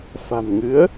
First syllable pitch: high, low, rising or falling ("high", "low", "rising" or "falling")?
low